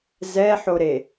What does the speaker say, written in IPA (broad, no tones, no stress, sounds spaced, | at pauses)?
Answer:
z ɛ ħ o ɾ e